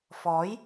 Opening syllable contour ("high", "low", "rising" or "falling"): rising